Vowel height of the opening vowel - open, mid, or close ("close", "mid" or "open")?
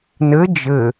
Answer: mid